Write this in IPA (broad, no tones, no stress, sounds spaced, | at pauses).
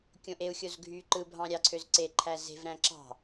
kʲ õ ʔ e u̯ xʲ o z ɡʱ y ǃ ɯ bʱ ɑ̃ ɾʲ ɑ ǀʰ ø z ǀ e ǃʰ æ z e̤ v ɾ æ̃ ǁ ɑ̤